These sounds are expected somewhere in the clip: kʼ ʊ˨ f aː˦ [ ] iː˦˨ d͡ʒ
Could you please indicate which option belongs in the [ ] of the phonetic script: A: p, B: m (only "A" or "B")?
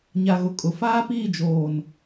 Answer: A